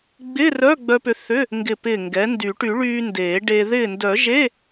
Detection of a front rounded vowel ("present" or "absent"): present